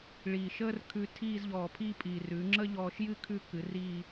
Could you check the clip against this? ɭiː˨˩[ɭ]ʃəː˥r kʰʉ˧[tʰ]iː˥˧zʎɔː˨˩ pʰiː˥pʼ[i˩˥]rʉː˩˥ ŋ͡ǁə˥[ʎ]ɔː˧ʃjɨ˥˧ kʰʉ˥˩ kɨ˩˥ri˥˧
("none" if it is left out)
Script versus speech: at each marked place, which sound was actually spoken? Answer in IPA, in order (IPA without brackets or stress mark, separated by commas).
none, tʰ, i˨˩, ʎ